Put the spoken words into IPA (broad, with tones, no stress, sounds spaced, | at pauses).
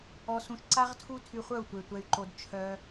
ɔ˧ s ũ˧ ʃ ǀ a˦ ʁ tʰ u˦ tʰ y˧ χʷ œ˦˨ u̯ tʷ e˨ tʷ ɛ˧ y̯ ǃ o˧ d t͡ʃʰ œ˧